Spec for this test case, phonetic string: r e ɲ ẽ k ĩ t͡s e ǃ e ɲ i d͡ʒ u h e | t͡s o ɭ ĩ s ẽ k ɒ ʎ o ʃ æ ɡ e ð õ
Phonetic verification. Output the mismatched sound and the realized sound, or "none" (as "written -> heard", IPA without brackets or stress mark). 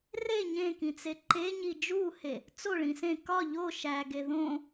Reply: none